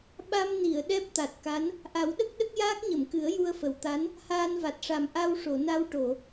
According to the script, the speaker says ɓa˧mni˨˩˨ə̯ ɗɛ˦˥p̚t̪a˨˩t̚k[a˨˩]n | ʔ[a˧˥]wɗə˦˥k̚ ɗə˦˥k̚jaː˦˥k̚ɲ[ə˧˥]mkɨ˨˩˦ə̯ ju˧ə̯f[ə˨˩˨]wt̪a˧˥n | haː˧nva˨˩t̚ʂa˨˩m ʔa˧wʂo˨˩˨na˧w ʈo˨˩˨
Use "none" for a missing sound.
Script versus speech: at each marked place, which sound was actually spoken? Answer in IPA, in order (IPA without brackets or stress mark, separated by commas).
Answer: a˧˥, a˨˩˦, ə˨˩˨, ə˨˩˨